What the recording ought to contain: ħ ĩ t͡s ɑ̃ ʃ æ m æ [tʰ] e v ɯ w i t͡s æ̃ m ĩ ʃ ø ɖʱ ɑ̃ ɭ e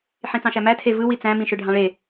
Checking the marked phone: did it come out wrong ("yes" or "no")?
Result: no